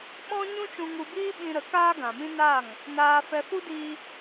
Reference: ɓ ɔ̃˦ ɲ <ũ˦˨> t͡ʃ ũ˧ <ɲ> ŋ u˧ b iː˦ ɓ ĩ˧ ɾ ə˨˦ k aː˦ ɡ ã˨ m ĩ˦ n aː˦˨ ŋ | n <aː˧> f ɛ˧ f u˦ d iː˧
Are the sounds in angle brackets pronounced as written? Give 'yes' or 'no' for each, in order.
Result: no, no, yes

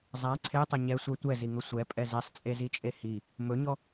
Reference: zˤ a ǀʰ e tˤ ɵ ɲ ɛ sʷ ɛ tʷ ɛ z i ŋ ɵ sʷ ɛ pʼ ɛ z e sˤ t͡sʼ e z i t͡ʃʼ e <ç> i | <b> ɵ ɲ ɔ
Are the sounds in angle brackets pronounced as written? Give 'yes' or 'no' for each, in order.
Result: no, no

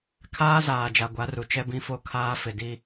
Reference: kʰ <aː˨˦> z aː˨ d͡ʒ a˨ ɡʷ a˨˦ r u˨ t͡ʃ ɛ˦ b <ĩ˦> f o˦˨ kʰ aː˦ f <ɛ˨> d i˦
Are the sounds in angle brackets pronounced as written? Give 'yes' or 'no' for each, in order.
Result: no, yes, no

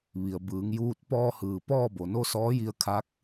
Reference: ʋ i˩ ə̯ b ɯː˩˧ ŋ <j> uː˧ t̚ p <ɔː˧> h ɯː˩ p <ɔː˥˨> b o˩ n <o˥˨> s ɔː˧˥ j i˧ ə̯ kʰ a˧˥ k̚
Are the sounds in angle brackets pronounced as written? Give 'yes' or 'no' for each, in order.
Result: yes, yes, yes, yes

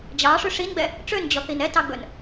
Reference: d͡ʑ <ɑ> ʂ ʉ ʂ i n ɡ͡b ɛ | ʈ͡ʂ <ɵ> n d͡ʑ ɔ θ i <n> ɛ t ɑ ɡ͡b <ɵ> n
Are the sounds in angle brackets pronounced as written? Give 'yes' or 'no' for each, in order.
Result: yes, no, yes, yes

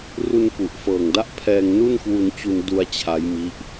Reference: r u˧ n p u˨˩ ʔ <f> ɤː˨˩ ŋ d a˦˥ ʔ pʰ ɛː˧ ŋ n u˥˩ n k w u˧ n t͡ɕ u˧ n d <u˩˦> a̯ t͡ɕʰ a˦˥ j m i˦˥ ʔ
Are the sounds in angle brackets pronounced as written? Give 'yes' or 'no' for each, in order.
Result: yes, no

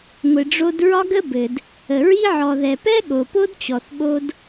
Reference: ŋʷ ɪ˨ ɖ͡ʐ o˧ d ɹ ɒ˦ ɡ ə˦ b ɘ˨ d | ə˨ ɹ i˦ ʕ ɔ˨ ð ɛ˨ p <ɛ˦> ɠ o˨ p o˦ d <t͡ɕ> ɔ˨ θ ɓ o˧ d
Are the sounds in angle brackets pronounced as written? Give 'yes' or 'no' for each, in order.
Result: yes, yes

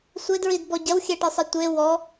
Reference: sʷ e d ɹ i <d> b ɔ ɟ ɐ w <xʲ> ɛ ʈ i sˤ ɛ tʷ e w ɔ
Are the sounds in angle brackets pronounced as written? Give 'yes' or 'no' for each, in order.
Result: yes, yes

